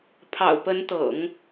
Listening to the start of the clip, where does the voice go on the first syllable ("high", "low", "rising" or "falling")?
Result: low